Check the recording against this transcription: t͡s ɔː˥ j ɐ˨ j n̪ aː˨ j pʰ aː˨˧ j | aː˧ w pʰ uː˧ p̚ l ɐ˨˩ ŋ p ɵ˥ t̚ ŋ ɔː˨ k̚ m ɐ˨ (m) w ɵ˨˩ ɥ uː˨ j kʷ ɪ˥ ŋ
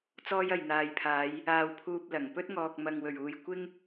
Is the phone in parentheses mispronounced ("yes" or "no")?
yes